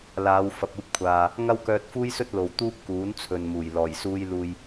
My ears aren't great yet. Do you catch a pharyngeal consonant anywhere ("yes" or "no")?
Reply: no